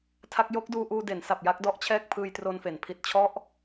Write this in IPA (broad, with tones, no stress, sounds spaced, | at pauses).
tʰ a˦˥ k̚ j o˦˥ k̚ d uː˧ ʔ uː˧ d e˩˦ n s a˨˩ p̚ j a˦˥ k̚ d ɔ˥˩ ʔ t͡ɕʰ ɛː˥˩ k̚ pʰ ɯː˧ j t r o˧ n f e˩˦ n pʰ i˨˩ t̚ t͡ɕʰ ɔ˦˥ ʔ